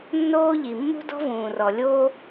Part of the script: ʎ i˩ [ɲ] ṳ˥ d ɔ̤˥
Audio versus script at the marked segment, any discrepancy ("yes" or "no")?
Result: yes